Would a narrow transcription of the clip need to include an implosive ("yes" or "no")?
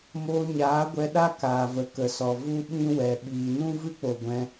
yes